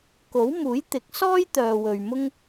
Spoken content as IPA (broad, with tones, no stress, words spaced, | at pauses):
ko˨˥wmuː˨˥j t̪ɪ˨˥k̚sɔː˥j t̪œː˨wɵ˨ɥ mʊ˥ŋ